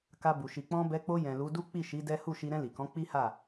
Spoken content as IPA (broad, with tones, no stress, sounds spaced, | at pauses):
k a˧ b u˨ ʃ i˨ k͡p ɔ̃˧ b ɛ˧ k͡p o˧ j ɛ̃˨ l u˨˦ d u˦ k͡p i˦˨ ʃ i˨˦ d ɛ˦ h u˦˨ ʃ i˧ ɾ ɛ̃˧ l i˨ k ɔ̃˨˦ k͡p i˦ h a˦˨